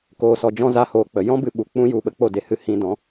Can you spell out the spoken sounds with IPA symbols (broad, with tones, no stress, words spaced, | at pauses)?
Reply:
koː˧sɔ˧d͡ʒɔ̃˦ za˦hoː˧k͡pə˧ jɔ̃˦bɨ˧ɓu˨ k͡pũ˧ju˨ ɓə˧k͡po˦˨de˧hɨ˧ hĩ˧dɔ̃˨˦